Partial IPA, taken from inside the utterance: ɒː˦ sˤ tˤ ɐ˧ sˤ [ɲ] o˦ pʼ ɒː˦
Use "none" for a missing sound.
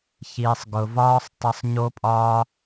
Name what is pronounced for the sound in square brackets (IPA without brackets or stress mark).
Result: ɲ